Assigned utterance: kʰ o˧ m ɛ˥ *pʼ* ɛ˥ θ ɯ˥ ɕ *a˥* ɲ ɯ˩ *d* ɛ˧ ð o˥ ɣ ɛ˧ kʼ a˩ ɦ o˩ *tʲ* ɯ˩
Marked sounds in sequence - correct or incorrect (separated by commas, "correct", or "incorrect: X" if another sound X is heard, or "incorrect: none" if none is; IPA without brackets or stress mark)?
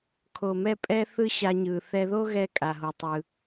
correct, incorrect: a˧, incorrect: θ, incorrect: tˤ